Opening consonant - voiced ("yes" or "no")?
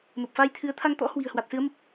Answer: yes